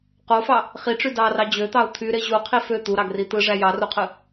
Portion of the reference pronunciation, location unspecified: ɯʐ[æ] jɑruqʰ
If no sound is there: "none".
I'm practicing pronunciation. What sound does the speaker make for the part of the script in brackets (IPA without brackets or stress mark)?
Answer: æ